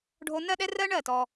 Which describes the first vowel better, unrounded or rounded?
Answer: rounded